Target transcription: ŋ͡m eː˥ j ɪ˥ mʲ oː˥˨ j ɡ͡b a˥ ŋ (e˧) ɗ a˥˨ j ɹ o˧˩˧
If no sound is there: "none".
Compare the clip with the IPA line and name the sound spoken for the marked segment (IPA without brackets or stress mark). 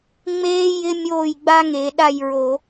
e˧˩˧